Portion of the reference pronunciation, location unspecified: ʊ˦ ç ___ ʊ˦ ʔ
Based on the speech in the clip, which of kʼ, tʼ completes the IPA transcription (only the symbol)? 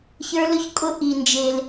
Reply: kʼ